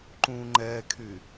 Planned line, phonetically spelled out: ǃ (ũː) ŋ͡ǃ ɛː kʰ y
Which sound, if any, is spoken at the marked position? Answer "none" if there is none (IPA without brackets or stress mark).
ũː